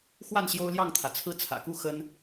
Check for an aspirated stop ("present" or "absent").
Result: present